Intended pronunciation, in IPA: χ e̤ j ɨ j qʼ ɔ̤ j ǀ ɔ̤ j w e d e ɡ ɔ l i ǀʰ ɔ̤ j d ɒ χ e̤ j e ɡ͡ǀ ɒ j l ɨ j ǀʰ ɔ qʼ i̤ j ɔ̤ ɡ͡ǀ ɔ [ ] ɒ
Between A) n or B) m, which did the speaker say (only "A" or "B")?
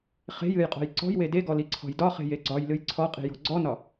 A